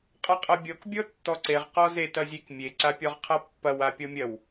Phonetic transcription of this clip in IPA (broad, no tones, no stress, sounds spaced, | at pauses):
qʼ a qʼ ɐ bʲ ɔ k bʲ ɔ tː ɔ ǀ e ʁ q ɔ z e t ɐ zʲ e k mʲ e ǀ a pʲ ɔ ʁ qʰ ɐ pː ɐ w a pʲ ɔ mʲ ɐ w